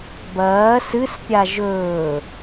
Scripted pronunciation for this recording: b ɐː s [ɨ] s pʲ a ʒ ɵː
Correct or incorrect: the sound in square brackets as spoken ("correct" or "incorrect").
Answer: correct